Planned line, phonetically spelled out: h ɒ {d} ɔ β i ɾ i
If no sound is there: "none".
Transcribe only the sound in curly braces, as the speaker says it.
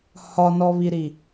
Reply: n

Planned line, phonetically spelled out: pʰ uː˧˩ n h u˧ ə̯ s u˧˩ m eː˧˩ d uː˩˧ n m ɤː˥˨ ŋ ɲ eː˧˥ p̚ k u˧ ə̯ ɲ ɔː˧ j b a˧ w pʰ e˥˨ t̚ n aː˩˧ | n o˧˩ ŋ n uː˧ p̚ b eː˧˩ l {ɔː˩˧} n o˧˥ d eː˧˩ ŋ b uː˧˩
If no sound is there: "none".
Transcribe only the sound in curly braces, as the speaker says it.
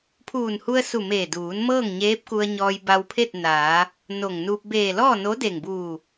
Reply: ɔː˥˨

